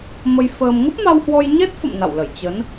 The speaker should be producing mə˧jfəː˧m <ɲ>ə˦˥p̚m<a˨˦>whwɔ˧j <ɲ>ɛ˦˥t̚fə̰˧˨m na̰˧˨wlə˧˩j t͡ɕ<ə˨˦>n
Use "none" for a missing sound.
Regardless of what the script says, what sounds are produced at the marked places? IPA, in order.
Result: ŋ, a˧, ɲ, ə˨˦

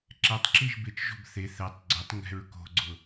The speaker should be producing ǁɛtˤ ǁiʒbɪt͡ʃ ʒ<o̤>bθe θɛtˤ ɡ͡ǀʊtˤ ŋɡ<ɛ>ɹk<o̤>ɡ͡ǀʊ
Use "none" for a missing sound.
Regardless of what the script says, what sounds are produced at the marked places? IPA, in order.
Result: o̤, ɛ̤, o̤

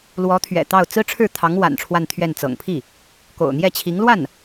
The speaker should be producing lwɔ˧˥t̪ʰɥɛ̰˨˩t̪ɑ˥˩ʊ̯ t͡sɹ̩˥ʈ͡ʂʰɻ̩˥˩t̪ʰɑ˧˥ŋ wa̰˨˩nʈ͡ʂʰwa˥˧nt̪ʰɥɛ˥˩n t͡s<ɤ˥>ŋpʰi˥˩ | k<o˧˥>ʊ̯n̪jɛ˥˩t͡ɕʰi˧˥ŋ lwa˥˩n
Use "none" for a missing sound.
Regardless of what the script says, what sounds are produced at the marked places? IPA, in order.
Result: ɤ̰˨˩, o̰˨˩

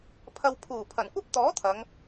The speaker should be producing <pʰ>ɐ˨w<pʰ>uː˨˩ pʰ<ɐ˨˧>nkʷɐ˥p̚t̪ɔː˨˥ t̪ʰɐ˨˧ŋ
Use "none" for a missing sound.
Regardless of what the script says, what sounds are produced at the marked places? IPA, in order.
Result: pʰ, pʰ, ɐ˨˩

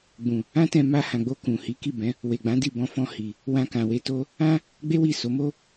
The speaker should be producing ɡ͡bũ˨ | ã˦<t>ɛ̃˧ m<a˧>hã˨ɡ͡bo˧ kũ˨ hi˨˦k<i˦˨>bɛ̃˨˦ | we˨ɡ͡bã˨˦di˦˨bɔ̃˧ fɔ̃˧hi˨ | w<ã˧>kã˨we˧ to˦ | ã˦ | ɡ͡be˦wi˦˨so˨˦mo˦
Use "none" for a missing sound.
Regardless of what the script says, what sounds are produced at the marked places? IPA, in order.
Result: t, a˧, i˦˨, ã˧

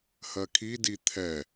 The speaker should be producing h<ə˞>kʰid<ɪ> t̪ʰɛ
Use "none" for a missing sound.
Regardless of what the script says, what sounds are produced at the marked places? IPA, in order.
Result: ɜ, i

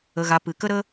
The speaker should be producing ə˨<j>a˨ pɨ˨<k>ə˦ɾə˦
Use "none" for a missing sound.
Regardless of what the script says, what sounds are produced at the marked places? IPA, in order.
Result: ɣ, k

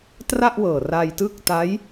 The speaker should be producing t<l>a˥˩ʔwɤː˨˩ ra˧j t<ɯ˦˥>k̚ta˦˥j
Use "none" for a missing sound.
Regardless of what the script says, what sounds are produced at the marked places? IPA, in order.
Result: r, ɯ˦˥

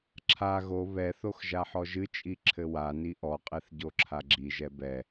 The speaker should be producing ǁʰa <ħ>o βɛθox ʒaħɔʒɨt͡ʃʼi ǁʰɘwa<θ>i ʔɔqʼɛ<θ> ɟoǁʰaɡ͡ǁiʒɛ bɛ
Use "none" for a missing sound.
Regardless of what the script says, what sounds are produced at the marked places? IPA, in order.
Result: ɣ, n, θ

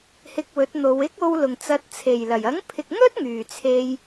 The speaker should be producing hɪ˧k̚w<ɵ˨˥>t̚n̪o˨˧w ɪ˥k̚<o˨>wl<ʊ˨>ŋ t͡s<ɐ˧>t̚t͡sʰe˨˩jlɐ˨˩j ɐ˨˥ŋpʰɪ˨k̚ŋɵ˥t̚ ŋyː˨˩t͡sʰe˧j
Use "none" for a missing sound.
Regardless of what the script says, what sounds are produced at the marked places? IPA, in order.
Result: ɵ˨˥, o˧, ʊ˨˩, ɐ˧

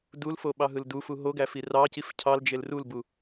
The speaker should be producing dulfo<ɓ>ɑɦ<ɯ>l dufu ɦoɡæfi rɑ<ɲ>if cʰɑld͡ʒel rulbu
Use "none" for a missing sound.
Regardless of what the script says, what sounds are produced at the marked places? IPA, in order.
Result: ɓ, ɯ, c

